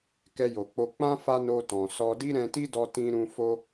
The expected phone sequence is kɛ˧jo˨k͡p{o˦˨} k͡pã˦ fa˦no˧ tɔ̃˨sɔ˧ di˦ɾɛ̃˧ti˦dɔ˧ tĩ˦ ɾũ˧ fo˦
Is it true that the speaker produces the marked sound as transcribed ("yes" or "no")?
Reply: no